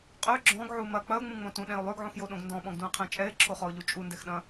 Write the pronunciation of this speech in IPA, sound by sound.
qʼ ø ɡ͡ǁ ɔ̃ ɡ ʕ u m ɐ k͡p ɐ ʊ̯ ŋ͡m ũ ŋ͡m õ t ũ ɗ ɛ̃ ʊ̯ lˠ ø ɡ ʕ ũ x j o ɗ õ ɡ n d ɔ̃ ɓ ɔ̃ ɡ d ũ ə̯ qʰ ɛ̃ t͡ʃʼ ɛ ɪ̯ ǁʰ o χ ɔ ʊ̯ ʎ u t͡ʃʼ u n d ɛ x ɗ ɐ̃

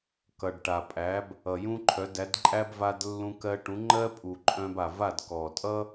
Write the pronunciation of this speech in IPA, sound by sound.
k ʌ˩ ɖ ʈ a˩ pʼ æ˩˥ b | ʌ˩ j ũ˥ ǃʰ œ˩˥ d æ˩˥ d ǃʼ æ˥ b v a˧ d lː ũ˧ k ɜ˧ ʈ ũ˩˥ ŋ͡ǃ ɜ˥ pʼ u˩ ǃʼ œ̃˧ b a˩ v a˥˩ d k ɔ˩ tʼ ʌ˥

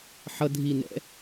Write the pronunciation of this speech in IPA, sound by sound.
ħ ʌ dʱ i n ɛ̰

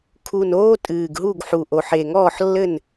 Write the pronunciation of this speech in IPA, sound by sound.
kʰ u˨˩ n oː˦ tʼ ɨː˨˩ ɡ ɦ u˥˨ ɡ ħ u˨˩ ʔ o˨˩ ħ e˨˩ ŋ ɔː˥˨ ħ lː ɘ˥˨ n

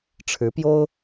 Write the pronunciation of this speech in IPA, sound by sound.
ʈ͡ʂʰ ɻ̩˧˥ p j o˥ ʊ̯

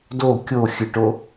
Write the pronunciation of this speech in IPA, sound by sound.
d o kʲ o xʲ ɨ ʈ o

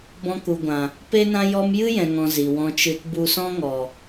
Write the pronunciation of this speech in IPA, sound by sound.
b ɔ̃˧ k u˨ ɡʷ ã˨ | p e˦ n ã˦ j ɔ˦ m j ɨ˦ j ɛ̃˨ ŋ ɔ̃˨ z i˨ w ɔ̃˧ t͡ʃ ɨ˧ t b u˧ s ɔ̃˦ ŋ ɔ˨

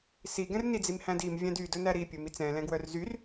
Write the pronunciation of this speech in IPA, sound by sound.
s i ɡ ɛ̃ r n i d͡z i m h æ̃ d i m vʲ æ̃ d y d ɵ n æ ɾ i pʲ ɵ m i t͡s ɛ̃ l ɛ̃ ɡ w œ r z y r

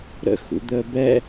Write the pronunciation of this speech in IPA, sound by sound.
ɾ ə̰ x ṵ d̪ əː b ɛ

